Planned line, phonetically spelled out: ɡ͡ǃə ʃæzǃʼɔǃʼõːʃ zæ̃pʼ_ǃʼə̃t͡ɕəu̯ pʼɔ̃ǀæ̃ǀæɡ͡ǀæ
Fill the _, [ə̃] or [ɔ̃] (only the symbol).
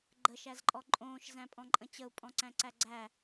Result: ɔ̃